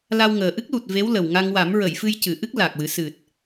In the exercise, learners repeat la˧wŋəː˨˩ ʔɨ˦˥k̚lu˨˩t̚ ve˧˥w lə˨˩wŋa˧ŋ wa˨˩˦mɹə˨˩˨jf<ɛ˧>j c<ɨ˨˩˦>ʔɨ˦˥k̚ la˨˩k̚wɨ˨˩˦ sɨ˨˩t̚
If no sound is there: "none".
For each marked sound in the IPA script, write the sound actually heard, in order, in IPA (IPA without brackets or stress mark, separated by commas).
ɨ˧, ɨ˨˩˨